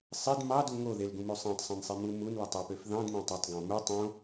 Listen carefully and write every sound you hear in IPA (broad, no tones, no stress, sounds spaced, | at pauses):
sˤ e d m ɑ d u ŋ o ð e l ɡ ũ m o sˤ æ̃ tˤ sˤ æ̃ n sˤ e m u m u n l æ tˤ e p ø f ð ɑ̃ d m æ̃ tˤ ɑ tˤ ɡ ɑ̃ m u tˤ õ